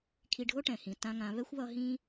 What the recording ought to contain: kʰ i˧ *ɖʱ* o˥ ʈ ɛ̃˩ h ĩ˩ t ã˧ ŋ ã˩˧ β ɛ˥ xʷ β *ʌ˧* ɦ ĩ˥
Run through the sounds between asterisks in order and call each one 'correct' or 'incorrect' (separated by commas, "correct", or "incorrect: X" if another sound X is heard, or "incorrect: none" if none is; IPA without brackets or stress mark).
correct, correct